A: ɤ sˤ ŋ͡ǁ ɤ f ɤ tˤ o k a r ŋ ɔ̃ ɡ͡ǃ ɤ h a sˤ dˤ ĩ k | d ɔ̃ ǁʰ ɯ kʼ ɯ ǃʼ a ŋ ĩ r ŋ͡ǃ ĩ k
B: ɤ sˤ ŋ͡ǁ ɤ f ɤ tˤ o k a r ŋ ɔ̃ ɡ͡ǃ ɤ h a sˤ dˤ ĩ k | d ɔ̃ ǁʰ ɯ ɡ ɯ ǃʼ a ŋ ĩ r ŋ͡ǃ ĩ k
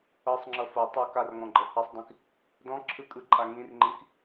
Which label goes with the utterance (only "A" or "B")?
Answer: A